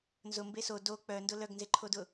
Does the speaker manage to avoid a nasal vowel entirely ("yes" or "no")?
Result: yes